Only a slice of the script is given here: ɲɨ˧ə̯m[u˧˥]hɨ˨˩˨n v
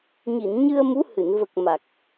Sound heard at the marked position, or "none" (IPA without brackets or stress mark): u˧˥